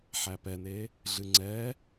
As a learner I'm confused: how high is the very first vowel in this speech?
low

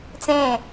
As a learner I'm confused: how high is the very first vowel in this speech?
mid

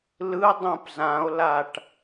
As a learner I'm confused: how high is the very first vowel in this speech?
high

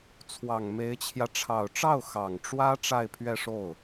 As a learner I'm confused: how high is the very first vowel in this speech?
low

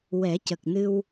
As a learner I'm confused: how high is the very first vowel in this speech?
mid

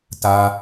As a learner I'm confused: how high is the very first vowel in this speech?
low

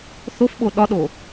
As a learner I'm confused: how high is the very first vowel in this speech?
mid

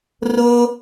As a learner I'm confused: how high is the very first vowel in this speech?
mid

